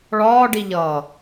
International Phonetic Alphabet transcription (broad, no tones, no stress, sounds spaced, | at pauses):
ɭ ɒː ɖ i ʎ ʌː